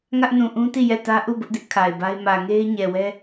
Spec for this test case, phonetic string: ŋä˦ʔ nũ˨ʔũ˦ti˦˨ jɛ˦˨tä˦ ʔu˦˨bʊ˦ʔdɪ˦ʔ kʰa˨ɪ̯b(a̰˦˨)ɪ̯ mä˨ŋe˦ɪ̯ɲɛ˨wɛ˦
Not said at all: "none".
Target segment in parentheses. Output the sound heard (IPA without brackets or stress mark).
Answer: a˦